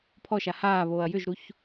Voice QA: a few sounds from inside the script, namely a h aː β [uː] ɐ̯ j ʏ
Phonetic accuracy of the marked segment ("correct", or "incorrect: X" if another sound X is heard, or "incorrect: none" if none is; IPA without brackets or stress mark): incorrect: oː